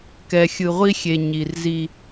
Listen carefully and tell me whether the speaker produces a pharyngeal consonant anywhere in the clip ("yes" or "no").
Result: no